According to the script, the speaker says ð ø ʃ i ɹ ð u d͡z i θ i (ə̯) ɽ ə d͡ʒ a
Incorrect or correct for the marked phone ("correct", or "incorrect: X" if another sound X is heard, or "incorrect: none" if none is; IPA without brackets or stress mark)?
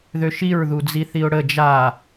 incorrect: ʊ̯